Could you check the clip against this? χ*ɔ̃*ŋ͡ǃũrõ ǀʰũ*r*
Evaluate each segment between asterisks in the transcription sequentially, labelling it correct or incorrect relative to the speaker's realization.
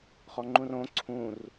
incorrect: ɔ, correct

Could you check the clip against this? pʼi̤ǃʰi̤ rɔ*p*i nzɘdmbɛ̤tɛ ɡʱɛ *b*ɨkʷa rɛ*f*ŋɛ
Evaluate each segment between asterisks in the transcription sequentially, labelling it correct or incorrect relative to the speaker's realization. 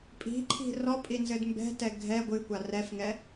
incorrect: pʼ, incorrect: ɡʷ, correct

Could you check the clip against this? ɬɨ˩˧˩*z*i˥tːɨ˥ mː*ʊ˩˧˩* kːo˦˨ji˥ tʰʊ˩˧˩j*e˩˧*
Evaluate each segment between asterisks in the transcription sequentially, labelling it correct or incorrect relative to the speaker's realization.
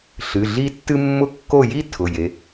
incorrect: ɮ, incorrect: ʊ˥, correct

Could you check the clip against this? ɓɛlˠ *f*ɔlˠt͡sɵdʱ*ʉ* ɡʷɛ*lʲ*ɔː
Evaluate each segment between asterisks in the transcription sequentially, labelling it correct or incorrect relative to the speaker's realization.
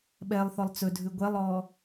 incorrect: θ, correct, incorrect: lˠ

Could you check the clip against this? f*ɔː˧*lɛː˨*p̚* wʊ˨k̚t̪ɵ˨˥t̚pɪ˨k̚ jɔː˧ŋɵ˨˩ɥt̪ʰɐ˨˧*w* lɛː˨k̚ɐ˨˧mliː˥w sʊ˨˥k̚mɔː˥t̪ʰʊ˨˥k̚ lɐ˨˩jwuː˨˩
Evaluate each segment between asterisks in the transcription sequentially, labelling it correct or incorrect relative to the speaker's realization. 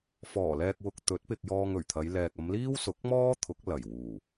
incorrect: ɔː˨˩, incorrect: k̚, incorrect: j

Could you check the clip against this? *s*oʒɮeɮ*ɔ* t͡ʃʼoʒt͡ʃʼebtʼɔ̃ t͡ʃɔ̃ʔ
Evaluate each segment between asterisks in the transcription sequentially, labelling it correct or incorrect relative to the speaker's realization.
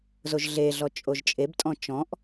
incorrect: z, correct

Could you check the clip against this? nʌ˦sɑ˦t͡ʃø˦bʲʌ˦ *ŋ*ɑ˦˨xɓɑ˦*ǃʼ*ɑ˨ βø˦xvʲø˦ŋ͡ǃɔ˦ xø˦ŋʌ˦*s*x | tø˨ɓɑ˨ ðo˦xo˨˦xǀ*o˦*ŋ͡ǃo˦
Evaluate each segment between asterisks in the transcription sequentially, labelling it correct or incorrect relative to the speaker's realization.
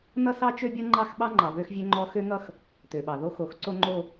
incorrect: ŋ͡ǃ, incorrect: ŋ͡ǃ, incorrect: none, correct

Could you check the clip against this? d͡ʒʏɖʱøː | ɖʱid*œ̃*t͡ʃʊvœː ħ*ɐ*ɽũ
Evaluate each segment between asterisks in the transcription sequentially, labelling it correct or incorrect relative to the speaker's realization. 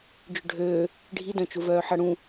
correct, correct

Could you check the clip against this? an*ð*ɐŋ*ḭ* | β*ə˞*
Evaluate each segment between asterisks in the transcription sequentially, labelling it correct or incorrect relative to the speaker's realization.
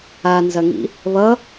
incorrect: z, correct, incorrect: ʌ

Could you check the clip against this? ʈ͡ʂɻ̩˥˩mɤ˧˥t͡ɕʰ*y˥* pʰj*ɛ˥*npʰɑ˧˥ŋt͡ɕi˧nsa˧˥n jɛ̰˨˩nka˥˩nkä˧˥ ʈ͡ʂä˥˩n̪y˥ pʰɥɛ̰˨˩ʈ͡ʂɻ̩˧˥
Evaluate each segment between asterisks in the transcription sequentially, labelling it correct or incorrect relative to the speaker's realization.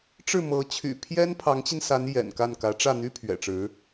incorrect: y̰˨˩, correct

